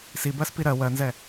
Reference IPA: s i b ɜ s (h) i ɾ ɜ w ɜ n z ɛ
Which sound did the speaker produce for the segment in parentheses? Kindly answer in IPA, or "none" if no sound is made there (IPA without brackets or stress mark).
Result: p